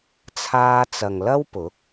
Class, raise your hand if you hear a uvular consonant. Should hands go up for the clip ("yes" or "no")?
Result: no